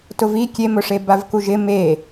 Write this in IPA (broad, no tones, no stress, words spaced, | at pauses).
tʊvi kʲemʊʂe bavkuʒɪ me